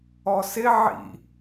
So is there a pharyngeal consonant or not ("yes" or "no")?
yes